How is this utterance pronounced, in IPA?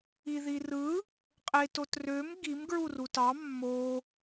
i ð i r ɯ | qʼ e t o t r ø m ɡ i m ɡ ɹ u r u t ɑ mː o

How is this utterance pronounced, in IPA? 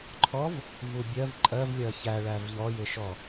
ǃʰ ɔ v | v u bʲ ɜ v ǃʼ ɜ v lʲ ɜ ç æ ɭ æ v ʎ ɔ j ɪ ʃ ɔ

